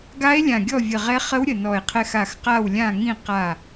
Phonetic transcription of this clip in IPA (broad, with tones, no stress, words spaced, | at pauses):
ɡa˧˥e̯ lʲã˧˩ɡʲɔ˥˨vʲə˧˩ ʁɛ˧˥ χə˧˥w ɾʲə˧˩nɔ˧˩e̯qʰɛ˧˥x a˧˩xqa˥˨wlʲã˥˨ŋĩ˥˨ qa˧˩